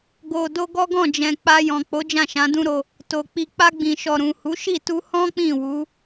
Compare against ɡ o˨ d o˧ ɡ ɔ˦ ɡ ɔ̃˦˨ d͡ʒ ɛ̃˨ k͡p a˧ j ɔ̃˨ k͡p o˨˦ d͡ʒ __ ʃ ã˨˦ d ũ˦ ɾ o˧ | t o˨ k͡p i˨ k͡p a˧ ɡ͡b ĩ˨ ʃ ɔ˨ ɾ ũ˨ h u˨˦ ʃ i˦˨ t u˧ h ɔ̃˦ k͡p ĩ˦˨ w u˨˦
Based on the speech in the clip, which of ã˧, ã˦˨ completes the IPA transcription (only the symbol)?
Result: ã˦˨